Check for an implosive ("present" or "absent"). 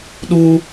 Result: present